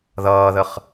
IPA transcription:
ð ʌː ð ə χ

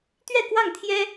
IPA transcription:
t̪ ɥ ɛ˥˨ k w ɑ˥˨ ŋ t̪ʰ j ɛ˦

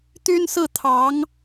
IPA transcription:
t̪ y˥ n s ɹ̩˥˩ t̪ʰ ɑ˧˥ ŋ

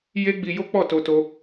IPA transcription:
j e˦ ɡ͡b i˧ j o˦ k͡p ɔ˦˨ t o˧ t o˧

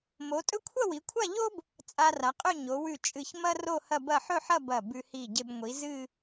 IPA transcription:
m o˩˧ tʼ ɵ˥ kʷʰ ɐ˥˧ w i˩˧ kʷʰ a˥˧ ʎ o˥ b | t͡sʼ a˧ r a˩˧ qʼ ɵ˥˧ ɲ o˩˧ w ʉ˧˩ t͡ʃʼ ɨ˧˩ ç m ɐ˥ r o˥˧ h ɐ˥˧ b ɐ˥˧ ħ ɵ˥˧ ħ ɐ˥˧ b ɐ˧˩ b ʉ˧ h i˧˩ ɟ e˧ b ŋʷ i˩˧ z ɨ˥˧

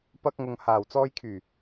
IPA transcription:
p ɐ˧ k̚ ŋ ʊ˨ ŋ h aː˨˩ w t͡s ɔː˧ j kʰ yː˨˩

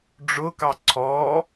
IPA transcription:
ɖ͡ʐ ʊ k ɑ ǀʰ ɔ

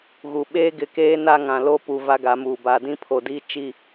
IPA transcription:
ɣ u˨ ɓ eː˦ ɡ ɪ˨ k eː˦ n a˦ ŋ ã˨ l o˦ p u˨ v a˦ ɡ a˨˦ m uː˨ b a˨ d ĩ˦ pʰ o˨ d i˦ t͡ʃ i˦˨

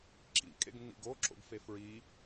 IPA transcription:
ǁ ḭ kʼ ḛ ɡ nː ḭ ɡ o ǁ o̰ ɡ f e f ɹ i

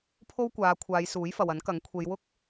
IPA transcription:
pʰ o˥ w kʷ aː˨˧ kʷʰ aː˨˧ j s uː˨˥ j f ɐ˨ w ɐ˨˥ n k ɐ˨˥ ŋ kʷʰ e˨˧ j w ʊ˥ k̚

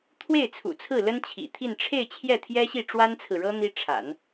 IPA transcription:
t̪ʰ w e˥˩ ɪ̯ t͡sʰ ṵ˨˩ t͡sʰ ɹ̩˥˩ l ə˥ n t͡ɕʰ ḭ˨˩ t̪ʰ i˥˧ n ʈ͡ʂʰ e˥˧ ɪ̯ t͡ɕʰ j ɛ˥˩ t̪ʰ j ɛ˥ ɕ i˥˩ ʈ͡ʂ w a˥ n t͡sʰ ɹ̩˨ ɻ ɤ˥ n̪ i˥ ʈ͡ʂʰ a̰˨˩˦ n

